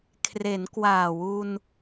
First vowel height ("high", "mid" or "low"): mid